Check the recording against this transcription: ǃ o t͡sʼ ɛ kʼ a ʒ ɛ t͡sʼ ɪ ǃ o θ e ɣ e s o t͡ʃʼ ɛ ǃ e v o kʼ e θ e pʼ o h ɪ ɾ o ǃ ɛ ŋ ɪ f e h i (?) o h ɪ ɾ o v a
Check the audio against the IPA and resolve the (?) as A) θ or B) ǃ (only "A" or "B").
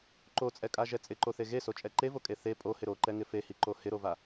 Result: B